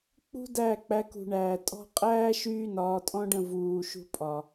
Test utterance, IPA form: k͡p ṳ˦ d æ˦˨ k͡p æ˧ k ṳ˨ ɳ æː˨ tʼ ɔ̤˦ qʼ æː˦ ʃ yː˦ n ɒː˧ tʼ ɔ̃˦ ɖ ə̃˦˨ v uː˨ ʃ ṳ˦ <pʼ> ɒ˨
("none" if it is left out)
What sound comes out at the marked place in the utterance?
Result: pʼ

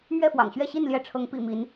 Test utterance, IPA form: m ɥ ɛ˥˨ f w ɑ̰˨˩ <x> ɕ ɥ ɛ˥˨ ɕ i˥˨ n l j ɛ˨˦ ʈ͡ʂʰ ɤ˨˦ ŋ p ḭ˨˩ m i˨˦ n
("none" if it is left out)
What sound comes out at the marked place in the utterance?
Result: ŋ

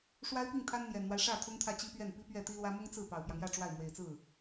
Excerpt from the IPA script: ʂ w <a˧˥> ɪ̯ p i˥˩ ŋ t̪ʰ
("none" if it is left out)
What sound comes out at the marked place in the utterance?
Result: a˥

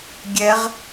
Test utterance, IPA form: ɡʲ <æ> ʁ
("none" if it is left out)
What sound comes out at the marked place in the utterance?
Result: ɛ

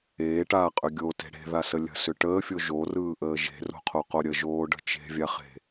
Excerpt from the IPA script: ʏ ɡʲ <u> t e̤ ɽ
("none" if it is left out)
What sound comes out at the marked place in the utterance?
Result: o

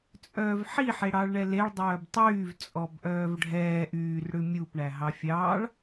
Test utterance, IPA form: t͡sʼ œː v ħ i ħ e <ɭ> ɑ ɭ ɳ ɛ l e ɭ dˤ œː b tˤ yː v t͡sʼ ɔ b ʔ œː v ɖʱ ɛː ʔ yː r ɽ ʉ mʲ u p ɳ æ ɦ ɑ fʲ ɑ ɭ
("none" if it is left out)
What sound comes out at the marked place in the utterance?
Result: ɽ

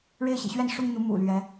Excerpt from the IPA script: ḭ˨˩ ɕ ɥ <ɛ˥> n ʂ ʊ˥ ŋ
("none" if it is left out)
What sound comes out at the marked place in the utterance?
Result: ɛ˥˩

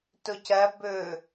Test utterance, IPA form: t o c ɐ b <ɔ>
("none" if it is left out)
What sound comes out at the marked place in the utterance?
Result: ɵ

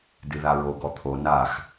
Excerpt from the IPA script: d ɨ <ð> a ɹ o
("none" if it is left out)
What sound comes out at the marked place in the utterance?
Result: ð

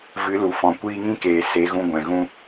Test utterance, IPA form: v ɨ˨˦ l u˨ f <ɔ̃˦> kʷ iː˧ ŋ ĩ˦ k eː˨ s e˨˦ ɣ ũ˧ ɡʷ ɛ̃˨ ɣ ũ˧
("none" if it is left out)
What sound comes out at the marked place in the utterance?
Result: ɔ̃˨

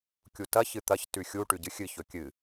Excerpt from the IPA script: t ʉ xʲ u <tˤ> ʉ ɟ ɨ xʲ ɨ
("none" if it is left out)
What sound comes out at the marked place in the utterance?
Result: ʈ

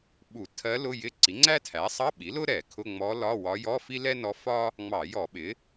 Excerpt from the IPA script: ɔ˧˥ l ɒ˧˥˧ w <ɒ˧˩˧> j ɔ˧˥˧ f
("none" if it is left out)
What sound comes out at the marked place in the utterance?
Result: ɒ˧˥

